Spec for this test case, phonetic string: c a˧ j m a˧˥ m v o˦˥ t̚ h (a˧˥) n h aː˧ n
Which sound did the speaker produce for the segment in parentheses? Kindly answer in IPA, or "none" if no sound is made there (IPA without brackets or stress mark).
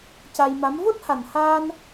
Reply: a˨˩